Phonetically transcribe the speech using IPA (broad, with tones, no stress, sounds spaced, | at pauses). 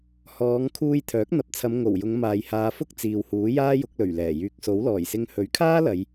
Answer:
h ɔː˨˧ ŋ kʰ uː˧ j t̪ʰ œː˨˥ k̚ n̪ ɐ˨ p̚ t͡sʰ ɐ˨˧ m ŋ o˨˩ w j ʊ˨˧ ŋ m aː˨ j h aː˨˧ f ʊ˥ k̚ t͡s iː˨ w h uː˨˥ j aː˥ j ʊ˨˥ k̚ l ɵ˨˩ ɥ l ɛː˨˩ j yː˨ k̚ s o˨˥ w l ɔː˨˩ j s ɪ˧ ŋ h ɵ˨˥ ɥ kʰ aː˥ l ɐ˨˧ j